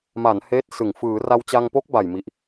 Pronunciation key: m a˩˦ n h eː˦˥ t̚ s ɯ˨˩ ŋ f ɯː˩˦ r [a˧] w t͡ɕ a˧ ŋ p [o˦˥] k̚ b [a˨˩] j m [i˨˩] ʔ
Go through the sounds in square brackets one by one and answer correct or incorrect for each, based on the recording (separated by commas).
correct, correct, correct, correct